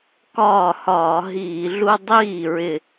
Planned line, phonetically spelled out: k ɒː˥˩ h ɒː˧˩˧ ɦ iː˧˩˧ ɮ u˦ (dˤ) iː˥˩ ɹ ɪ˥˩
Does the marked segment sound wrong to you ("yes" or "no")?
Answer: no